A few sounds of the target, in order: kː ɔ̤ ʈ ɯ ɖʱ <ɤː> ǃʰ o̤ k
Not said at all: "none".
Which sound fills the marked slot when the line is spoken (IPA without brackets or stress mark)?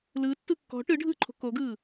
ɯː